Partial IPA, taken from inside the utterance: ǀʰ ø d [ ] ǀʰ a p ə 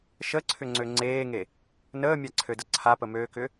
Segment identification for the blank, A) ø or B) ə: B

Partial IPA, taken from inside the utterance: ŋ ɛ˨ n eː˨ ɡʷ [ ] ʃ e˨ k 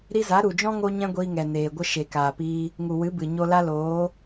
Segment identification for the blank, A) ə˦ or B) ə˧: A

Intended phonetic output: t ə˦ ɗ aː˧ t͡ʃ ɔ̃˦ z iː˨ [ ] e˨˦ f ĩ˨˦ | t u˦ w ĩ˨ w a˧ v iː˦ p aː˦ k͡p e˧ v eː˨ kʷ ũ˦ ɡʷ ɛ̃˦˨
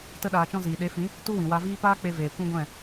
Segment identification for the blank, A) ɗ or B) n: A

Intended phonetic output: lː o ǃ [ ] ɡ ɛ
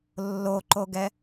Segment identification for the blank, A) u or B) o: B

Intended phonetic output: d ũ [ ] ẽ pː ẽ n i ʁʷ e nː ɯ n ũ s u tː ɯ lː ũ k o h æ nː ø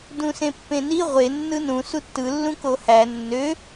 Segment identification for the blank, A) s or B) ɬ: A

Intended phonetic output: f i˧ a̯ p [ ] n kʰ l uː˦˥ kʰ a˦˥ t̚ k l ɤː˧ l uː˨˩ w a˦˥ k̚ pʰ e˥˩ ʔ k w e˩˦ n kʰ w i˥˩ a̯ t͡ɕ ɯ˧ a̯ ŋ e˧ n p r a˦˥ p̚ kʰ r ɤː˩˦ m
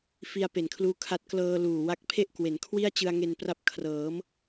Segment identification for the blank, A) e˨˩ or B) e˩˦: A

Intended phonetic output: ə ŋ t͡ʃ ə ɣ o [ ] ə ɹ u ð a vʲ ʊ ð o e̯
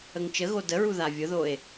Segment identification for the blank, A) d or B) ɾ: A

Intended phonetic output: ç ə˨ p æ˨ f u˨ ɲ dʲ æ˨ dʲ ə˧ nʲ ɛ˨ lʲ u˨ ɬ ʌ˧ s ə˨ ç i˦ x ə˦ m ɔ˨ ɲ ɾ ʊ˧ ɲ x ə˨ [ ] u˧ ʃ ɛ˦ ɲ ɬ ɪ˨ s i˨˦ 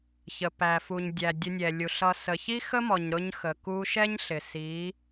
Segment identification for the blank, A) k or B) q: A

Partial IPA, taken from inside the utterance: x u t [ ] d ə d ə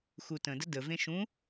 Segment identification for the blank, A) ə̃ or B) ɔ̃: A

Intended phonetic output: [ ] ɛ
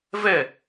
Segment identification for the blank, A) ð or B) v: B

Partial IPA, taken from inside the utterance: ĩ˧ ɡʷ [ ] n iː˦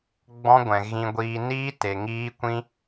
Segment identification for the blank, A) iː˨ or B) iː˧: B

